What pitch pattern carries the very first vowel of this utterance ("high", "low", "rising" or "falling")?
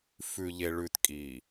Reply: low